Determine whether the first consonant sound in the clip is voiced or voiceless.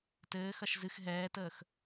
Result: voiceless